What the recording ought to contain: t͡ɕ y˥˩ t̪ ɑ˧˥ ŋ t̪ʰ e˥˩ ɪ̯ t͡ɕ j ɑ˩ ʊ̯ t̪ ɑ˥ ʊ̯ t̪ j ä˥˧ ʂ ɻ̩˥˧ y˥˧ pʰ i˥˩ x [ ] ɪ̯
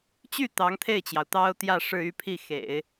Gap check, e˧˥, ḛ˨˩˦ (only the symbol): ḛ˨˩˦